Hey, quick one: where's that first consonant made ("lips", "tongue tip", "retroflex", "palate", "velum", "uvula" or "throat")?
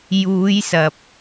palate